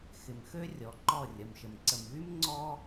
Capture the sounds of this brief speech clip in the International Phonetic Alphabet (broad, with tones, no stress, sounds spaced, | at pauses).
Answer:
x ɪ˨ m x ø˦ rʲ ɔ˨˦ ǃ ɔ˦˨ rʲ ɐ˨ m ʃ ə˨ m ǀ ə˨ m ɣ y˦ m ŋ͡ǀ ɔ˦